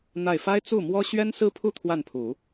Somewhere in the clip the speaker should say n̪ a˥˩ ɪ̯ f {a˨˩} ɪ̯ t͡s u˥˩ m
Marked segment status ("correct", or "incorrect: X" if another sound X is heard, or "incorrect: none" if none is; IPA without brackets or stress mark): incorrect: a˥